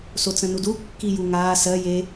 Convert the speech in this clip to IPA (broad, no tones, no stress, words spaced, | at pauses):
sot͡sə̃nudu kːijuŋaː sɜ je